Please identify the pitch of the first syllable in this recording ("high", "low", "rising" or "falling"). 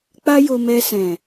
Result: high